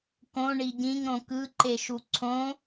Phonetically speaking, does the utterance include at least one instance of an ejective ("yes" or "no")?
no